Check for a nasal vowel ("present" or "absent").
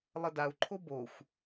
absent